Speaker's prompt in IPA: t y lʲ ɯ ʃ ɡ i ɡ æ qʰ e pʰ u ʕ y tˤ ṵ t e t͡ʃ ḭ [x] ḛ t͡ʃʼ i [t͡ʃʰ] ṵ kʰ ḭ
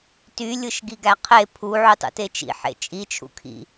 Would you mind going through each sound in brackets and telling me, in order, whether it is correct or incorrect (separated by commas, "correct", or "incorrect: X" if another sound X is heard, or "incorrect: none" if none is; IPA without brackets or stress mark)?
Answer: incorrect: ħ, correct